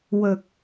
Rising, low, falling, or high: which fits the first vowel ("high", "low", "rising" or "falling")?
low